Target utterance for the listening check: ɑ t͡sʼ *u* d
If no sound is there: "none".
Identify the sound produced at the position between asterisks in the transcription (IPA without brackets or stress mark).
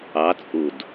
u